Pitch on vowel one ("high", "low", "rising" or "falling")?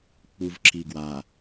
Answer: low